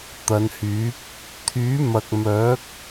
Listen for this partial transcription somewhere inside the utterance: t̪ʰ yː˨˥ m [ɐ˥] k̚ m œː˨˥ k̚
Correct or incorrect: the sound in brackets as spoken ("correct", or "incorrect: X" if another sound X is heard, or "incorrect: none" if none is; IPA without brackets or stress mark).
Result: incorrect: ɐ˨